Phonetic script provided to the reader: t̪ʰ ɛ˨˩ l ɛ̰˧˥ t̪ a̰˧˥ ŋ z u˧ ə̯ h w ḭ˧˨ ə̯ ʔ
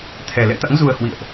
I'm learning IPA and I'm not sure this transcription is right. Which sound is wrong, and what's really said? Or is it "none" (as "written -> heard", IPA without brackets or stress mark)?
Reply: none